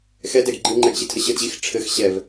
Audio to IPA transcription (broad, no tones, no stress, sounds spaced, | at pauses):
x ɛ d ɛ ɡ ɡ͡ǃ i ŋ͡ǃ ɛ ɡ ɕ i tʰ ə ɕ ə d ʑ i x ʈ͡ʂʰ ɘ x ɕ ɛ v